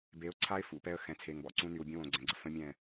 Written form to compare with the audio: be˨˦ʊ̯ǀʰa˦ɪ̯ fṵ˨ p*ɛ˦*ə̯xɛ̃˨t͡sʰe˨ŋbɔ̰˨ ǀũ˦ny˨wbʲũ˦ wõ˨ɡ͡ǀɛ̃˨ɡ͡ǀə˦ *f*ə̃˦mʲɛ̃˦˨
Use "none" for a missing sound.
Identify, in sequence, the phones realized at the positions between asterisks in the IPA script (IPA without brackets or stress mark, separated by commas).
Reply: ɛ˦, f